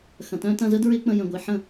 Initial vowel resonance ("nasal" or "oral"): nasal